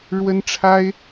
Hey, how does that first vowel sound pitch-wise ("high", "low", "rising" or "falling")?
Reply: high